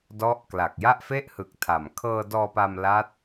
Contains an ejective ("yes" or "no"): no